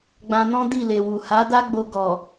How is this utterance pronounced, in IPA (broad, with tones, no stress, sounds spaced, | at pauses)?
ɡ͡b ã˧ n ɔ̃˦ d i˦˨ l e˨ w u˨ h a˨˦ d a˦ ɡ͡b o˧ ɡ ɔ˨